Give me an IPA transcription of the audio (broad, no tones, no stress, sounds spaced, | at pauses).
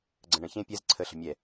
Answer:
ɡ͡ǀ ə̃ ɳ ə̃ ç ẽ pʲ ɛ z ǀʰ ə ɬ ə̤ mʲ ɛ